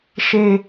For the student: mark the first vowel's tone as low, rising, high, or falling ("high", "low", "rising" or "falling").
low